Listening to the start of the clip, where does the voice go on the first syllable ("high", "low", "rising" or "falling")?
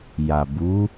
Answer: low